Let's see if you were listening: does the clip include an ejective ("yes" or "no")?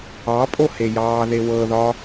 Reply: yes